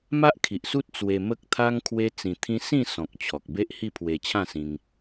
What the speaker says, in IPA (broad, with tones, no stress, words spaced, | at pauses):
ma˦ʔkʰi˨ʔsu˦t̚ t͡swe˧ mə˦k̚t̪ʰa˦ŋ kʰwe˦ t͡sĩ˧t̪ʰĩ˦ sĩ˥˧sɔ̃˨k̚ t͡ɕʰɔ˨k̚be˦ʔhi˥˧ pʰwe˧t͡ɕʰã˥˧sĩ˧ŋ